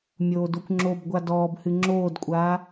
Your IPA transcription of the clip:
mʲ oː d o kʷ ŋ͡ǁ o b ɡʷ a d ɔː b h ɨ ŋ͡ǁ oː d kʷʼ aː

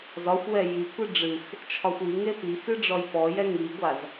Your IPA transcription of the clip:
z ɒ xʷ w ɛ j i kʷ ɨ ɖ͡ʐ ɨ x | t͡ʃʰ ɒ xʷ i ŋ e p i x ɨ ɖ͡ʐ ɔ j p ɔ j ɛ ŋ i ɡʷ a z

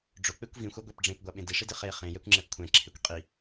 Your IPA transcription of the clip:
ɖ͡ʐ ʊ k͡p e kʷ v ĩ xʷ a ɡʷ ɛ p ɖ͡ʐ ẽ p ɡʷ a ɓ ẽ d i ʂ i d ɪ χ e χ ẽ j ɛ kʷ ŋ͡ǁ ɛ p kʷʰ ɛ̃ ǁʰ ɪ kʷ qʼ i

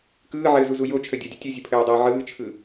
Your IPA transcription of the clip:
k ɯː ʕ ɘː z u z u j o t͡ʃʰ ə dʲ o dʲ ə tʲ ɯ zʲ ə pʰ ɘː dˤ ɘː ʕ ɯː t͡ʃʰ ɯ

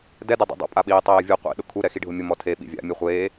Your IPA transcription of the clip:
d ɛ d e dˤ ɛ̰ dˤ o̰ pʼ a ɓ iː tˤ eː vʲ u qʷ ḭ ɗ ʊ kʰ u ɾ ɛ x i ɖʱ ʊ mʲ ʊ m ɔ tʰ e ɓ ḭ vʲ a̰ mʲ e χʷ eː

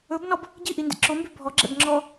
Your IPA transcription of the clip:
ɵ b n ɔ b | ɟ i ʔ i n d ḭ ǁ o m b y bʱ ɔ ɡ͡ǁ ɛ̰ b ŋ͡ǁ ɔ

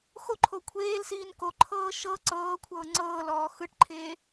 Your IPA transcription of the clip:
x o ǃʰ o kʷʰ eː l s iː n k o ǃʰ ɤː ʃ ɤ ǀ ɤː kʷʰ ɤː ŋ͡ǀ ɤː l ɔː x ɯ ʈ ǃʰ eː

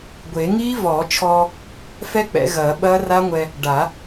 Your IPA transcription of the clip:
ɡʷ e˨˩˦ ŋ iː˦˥ v ɔː˨˩˦ t͡ʃʰ ɔː˧ | f ɛ˦˥ k͡p ɛ̰˨˩˦ ɣ ɐː˨˩˦ ɓ ɐː˦˥ r a˦˥ ŋʷ ɛ˧ | ɖ a˨˩˦

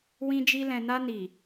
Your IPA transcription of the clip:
w ĩ˧ d͡ʒ i˧ l ɛ̃˨ n a˧ n i˨

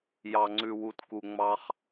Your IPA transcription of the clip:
j ɑ˨ ŋ͡ǀ ʉ˨ w u˨ t k u˨ ŋ͡m ɑ˦ χ

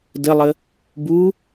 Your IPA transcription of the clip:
d ə lˠ ə | b u

